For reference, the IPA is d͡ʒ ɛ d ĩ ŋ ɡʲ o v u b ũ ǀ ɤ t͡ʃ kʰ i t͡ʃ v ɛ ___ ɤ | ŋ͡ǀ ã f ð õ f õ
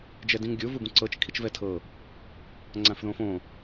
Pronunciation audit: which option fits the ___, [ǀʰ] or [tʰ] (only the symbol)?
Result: tʰ